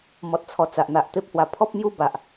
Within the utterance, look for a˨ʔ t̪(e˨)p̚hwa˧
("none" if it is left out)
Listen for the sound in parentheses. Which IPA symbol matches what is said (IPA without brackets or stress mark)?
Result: e˦